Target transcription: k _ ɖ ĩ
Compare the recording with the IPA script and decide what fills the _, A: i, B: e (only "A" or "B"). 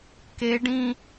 B